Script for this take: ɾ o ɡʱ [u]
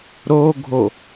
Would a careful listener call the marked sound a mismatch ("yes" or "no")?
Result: yes